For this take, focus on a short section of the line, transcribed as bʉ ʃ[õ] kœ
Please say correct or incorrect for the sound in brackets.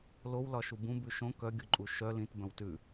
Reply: correct